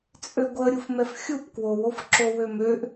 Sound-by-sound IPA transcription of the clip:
t͡sʼ ø ɡʷ ə ɾʲ u f m ɛ f xʲ u p k w o w o f ǁ o w ø m ø ʔ

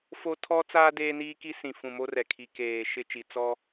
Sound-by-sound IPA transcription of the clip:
f o˦ tʰ ɔ˦ t͡s aː˦ d eː˦ n iː˦ k i˦ s ĩ˨ f ũ˨ m o˦ r ɛ˨ kʰ i˨ k eː˨ ʃ ɪ˦ t͡ʃ i˨ t͡s ɔ˦

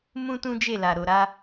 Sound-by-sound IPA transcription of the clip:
m ũ˦ t ũ˦ d͡ʒ e˦˨ l a˨ ɾ o˨ ɾ a˧

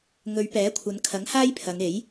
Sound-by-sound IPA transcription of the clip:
ŋ ɵ˨˧ ɥ p ɛː˨˥ kʷʰ ɐ˨˧ n kʰ ɐ˨˥ ŋ h aː˥ j pʰ ɐ˨˧ ŋ e˨˥ j

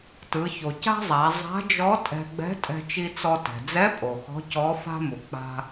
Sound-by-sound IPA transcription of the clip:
t ɯ˩˧ ç o˩ c a̤˥ zˤ a˩˧ zˤ a̤˧˥ d͡ʒ ɔ˧˥ tʼ ɛ̤˧ ɡ͡b ɛ̤˧˥ tʼ ɛ̤˧ t͡ʃ i˧ t͡s ɔ˧ t ɛ̤˩ d͡z ɛ˧˥ pʼ o˩ x ɔ̤˧˥ c ɔ˧˥ f a̤˥ m u˩ k͡p a̤˧

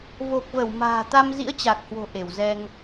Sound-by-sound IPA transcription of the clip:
v o˨˩ k̚ v ə˧˩ w m a̤ː˨˩ t̪ a˧ m z ḭ˧˥ ə̯ t͡ɕ a˨˩ k̚ h w o̤˨˩ ʔ e˧˩ w z ɛ˧ ŋ

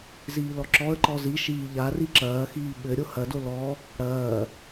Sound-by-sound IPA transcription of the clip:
z iː l ɔ ǁ ɔ ə̯ ǃ ɔ z i ʃ iː ʎ a r i ǁ ɐː x iː ɓ ɘ ɾʲ o h ɐ d o l ɔ | ɽ ɐː

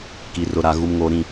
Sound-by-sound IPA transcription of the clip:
k i˨ r ʊ˨ ɾ a˨ ɣ u˨ m ŋ oː˨ ɾ ĩ˦˨

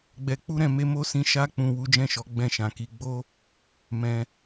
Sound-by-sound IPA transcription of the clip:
ɡ͡b ɛ˨ k͡p u˧ ɾ ɛ̃˨ m e˧ m o˧ s ĩ˧ ʃ a˧ k͡p ũ˨ w u˨˦ d͡ʒ ɛ̃˦˨ ʃ ɔ˨˦ ɡ͡b ɛ̃˦˨ ʃ ã˨ k i˨˦ ɡ͡b o˦ | m ɛ̃˧

